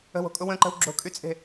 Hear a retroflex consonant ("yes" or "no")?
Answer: no